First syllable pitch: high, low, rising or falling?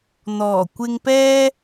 low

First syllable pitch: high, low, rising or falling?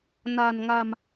low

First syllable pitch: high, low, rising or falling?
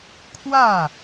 falling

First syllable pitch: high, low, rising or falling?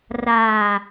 low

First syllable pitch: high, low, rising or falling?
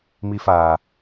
high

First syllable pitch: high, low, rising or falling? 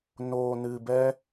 low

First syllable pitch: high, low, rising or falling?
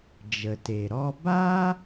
low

